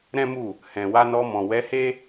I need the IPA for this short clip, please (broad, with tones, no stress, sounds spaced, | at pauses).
ɾ ɛ̃˦ m u˦˨ | h ɛ̃˨ w a˧ n ɔ˧ m ɔ̃˨ w ɛ˨˦ h e˦